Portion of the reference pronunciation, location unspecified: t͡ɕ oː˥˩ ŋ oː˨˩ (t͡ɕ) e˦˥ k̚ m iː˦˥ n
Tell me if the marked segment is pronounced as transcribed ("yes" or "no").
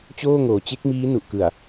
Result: yes